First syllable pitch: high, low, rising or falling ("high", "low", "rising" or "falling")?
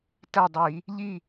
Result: falling